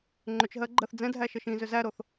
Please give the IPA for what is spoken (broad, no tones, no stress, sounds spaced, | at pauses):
ŋ͡ǃ ʏ t͡ʃ ɦ ɜ ɡ͡ǃ ɜ θ d͡z ɛ̃ dʱ æ ʃ ə ʃ ĩ z ʏ z æ ɾ o θ